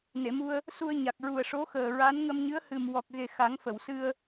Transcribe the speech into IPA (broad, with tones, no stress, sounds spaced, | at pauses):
n e˨˩˨ m u˧ ə̯ | s u˧ ə̯ ɲ a˨˩ k̚ ɹ u˨˩ ə̯ ʂ o˧˥ x əː˨˩ ɹ a˧˥ n ŋ ə˧ m ɲ ɨ˧˥ ə̯ h ɨ˨˩ m w ɔ˨˩ k̚ ɣ e˨˩ x a˨˩˦ ŋ f ə˨˩˨ w s ɨ˧ ə̯